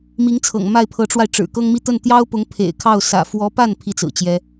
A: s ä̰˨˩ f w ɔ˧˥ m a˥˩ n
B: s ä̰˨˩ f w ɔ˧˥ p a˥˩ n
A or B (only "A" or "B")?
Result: B